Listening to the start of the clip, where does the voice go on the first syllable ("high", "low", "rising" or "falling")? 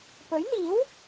rising